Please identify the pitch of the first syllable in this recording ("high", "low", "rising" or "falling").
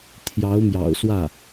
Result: rising